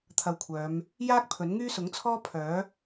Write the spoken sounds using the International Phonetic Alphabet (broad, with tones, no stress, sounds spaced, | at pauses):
t̪ʰ ɐ˧ w kʷʰ œː˨˧ m | j aː˥ k̚ pʰ ɵ˨˥ n ŋ yː˥ s ʊ˨˥ ŋ t͡sʰ ɔː˥ pʰ œː˨˥